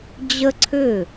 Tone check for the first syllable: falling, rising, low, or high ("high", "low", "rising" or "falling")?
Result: high